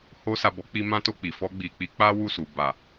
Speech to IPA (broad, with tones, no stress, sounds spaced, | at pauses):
h o˧ s a˨ b ɔ˨˦ k͡p i˧ m ã˦ t o˦˨ k͡p i˨ f ɔ˧ ɡ͡b i˨ k͡p i˨˦ k͡p a˦ w u˦˨ s u˨ b a˨